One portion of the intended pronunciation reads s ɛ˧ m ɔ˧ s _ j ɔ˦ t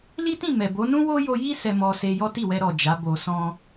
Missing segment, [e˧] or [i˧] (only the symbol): e˧